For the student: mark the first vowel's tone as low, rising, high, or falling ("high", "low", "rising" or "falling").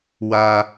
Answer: high